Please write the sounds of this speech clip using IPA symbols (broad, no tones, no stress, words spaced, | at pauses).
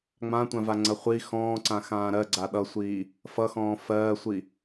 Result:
ŋ͡mãtʷãva ŋ͡ǀɐχʷi xɔ̃ːǀã xãːɾɜɡ͡ǀa ɗʌsʷiː | fʌxɔ̃ː fɜːsʷi